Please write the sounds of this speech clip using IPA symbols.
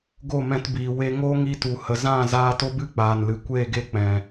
ɡ o˦˨ m ɛ̃˧ t b iː˨ w e˧ ŋ o˦ ŋ i˧ t u˨ h ə˨ z ã˦˨ z aː˧ t o˧ b ɨ˦ k͡p aː˨ n l ɨ˨ kʷ eː˦˨ ɡ e˦˨ k͡p ɛ̃˨

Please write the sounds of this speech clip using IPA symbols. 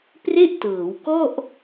p r e˥˩ ʔ t ɤː˩˦ w k ɔ˥˩ ʔ

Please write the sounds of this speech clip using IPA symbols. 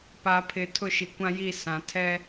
p a˨ pʰ ɪ˨ tʰ ʊ˦˨ ʃ i˨ kʷ ã˦ j i˦˨ s ã˨ tʰ ɛ˦

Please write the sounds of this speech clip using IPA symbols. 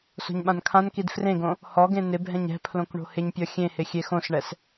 s o̤ ɲ ɓ ã n kʰ ã n k i d f r ẽ ɡ õ | h ɔ ɡ ẽ n ɪ bʱ ɛ̃ ɲ ɛ̤ pʰ l õ k ɳ o̤ h ɪ ɲ pʲ ɔ xʲ ẽ h ɪ xʲ e x õ s ɳ ɛ s

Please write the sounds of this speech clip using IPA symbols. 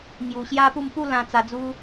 ŋ j u˧ ɕ j a˦ p u˥˧ m p u˥˧ l ã˧ t͡s a˧ d͡z u˦

